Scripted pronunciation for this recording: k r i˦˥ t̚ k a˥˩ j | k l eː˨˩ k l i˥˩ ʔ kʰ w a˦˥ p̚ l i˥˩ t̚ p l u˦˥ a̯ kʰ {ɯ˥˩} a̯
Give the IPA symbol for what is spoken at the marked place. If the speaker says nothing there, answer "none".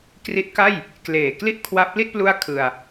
ɯ˧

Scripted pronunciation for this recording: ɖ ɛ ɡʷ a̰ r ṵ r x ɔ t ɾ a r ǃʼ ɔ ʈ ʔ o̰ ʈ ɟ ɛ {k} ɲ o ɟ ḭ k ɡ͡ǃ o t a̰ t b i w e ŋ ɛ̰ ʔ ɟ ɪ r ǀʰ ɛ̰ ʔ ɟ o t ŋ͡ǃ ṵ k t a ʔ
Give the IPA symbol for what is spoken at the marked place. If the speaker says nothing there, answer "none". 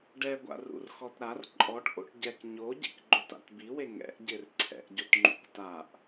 k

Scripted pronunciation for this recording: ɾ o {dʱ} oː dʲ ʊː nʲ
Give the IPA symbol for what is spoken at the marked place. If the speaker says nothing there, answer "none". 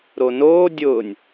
n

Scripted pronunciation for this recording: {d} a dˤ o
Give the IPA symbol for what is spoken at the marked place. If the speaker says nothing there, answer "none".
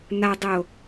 n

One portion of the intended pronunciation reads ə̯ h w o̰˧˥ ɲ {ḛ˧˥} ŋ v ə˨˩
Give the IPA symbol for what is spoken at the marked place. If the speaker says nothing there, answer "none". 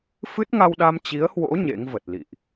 ḛ˧˥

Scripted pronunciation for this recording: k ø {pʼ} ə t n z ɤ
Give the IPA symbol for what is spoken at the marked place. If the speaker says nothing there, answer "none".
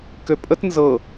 pʼ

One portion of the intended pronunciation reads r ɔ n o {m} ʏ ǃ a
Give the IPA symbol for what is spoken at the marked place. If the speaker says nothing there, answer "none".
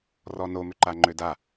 m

